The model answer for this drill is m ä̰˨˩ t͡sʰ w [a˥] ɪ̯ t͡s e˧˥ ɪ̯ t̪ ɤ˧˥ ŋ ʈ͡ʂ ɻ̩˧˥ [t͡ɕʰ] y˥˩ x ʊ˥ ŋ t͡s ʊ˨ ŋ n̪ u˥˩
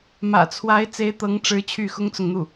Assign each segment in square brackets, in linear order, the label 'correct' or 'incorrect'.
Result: incorrect, correct

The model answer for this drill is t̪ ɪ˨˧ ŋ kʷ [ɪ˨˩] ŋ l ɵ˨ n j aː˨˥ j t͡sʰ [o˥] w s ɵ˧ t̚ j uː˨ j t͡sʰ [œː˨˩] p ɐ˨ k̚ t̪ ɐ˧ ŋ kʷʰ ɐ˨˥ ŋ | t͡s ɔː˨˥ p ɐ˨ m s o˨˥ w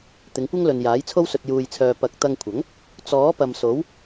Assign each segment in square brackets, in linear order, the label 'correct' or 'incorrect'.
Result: incorrect, correct, incorrect

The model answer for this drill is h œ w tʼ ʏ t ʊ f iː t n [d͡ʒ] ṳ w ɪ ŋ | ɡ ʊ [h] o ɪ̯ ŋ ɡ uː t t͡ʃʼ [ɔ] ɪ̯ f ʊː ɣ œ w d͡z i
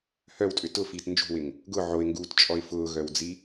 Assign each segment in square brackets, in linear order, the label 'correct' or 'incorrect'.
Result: correct, incorrect, correct

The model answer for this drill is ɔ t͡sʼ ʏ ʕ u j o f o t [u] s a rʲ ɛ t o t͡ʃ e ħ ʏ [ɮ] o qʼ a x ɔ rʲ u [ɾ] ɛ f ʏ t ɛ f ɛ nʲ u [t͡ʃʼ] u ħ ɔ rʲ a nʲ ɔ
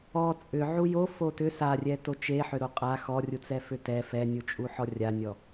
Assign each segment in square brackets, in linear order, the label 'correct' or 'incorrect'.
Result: incorrect, incorrect, incorrect, correct

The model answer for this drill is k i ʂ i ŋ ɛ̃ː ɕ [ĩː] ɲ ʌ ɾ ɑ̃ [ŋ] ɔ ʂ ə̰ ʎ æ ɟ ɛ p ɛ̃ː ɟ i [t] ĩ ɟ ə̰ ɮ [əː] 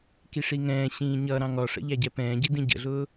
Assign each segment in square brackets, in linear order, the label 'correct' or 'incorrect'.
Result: correct, correct, incorrect, incorrect

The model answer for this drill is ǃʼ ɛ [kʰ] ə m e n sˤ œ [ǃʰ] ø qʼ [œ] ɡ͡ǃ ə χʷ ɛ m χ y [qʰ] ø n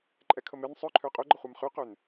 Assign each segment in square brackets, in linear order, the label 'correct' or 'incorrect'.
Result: correct, correct, incorrect, incorrect

